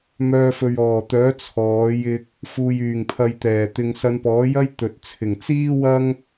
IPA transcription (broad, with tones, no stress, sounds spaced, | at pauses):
m œː˧ f ɵ˨ ɥ ɔː˨˩ t̪ œː˨˥ t͡sʰ ɔː˨˥ j ɪ˧ k̚ | f uː˨ j yː˨˩ ŋ pʰ ɐ˨ j t̪ ɛː˨˩ t̪ ɪ˨ ŋ s ɐ˧ n p ɔː˨˥ j ɐ˥ j t̪ ɵ˨ t̚ t͡sʰ ɪ˨˩ ŋ t͡s iː˥ w ɐ˥ ŋ